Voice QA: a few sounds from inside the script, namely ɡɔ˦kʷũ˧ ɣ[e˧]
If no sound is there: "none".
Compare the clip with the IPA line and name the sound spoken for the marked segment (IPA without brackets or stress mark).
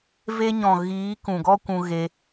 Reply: e˧